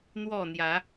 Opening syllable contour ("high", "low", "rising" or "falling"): falling